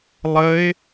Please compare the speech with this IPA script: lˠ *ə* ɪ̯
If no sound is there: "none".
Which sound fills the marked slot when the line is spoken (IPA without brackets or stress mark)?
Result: ə